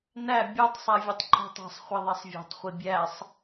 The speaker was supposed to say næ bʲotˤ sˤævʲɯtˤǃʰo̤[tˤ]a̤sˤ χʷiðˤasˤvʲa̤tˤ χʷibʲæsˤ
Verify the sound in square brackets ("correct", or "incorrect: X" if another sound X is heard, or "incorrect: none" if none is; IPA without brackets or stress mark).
correct